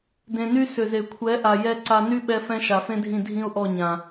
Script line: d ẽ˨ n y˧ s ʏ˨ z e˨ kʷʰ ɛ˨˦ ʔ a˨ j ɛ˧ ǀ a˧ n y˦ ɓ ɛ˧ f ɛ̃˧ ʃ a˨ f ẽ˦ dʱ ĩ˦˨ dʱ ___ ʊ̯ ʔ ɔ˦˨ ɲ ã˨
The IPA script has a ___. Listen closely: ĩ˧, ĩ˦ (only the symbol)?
ĩ˦